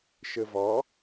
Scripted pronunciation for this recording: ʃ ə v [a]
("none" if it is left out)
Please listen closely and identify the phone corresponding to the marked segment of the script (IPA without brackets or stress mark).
ɑ